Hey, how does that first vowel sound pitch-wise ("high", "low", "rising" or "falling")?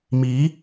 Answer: rising